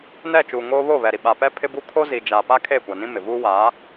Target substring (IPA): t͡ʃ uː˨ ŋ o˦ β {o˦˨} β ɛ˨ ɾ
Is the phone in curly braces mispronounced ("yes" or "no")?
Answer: no